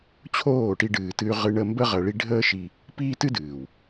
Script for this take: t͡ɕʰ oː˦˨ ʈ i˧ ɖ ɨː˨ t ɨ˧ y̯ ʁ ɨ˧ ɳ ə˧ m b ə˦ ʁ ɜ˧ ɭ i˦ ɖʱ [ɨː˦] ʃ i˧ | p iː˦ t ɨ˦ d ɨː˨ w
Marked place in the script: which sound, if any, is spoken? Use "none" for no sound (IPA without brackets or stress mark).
əː˦